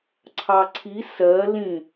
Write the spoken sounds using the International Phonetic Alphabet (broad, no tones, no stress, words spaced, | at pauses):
ǀʰɑǀʰi sɜ lĩ